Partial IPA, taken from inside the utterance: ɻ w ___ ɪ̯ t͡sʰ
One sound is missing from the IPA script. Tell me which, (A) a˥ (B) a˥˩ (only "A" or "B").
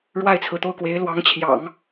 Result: B